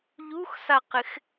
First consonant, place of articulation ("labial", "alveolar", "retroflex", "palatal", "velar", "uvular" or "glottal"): palatal